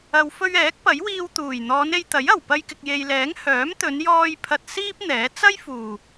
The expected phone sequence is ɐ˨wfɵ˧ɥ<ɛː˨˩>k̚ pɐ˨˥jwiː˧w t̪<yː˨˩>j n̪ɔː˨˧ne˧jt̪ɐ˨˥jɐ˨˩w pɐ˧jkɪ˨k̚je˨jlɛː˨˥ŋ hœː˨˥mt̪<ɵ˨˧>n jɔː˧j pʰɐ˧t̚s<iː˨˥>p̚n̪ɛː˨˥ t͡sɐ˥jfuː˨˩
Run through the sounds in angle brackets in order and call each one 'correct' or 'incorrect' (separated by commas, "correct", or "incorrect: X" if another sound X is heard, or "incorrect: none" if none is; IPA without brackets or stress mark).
incorrect: ɛː˨˥, incorrect: uː˨˩, correct, incorrect: iː˥